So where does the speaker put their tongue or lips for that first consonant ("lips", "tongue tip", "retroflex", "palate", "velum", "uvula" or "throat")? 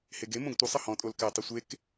throat